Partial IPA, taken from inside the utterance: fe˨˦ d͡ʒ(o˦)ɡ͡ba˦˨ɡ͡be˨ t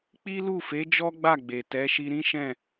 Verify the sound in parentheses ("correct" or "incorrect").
incorrect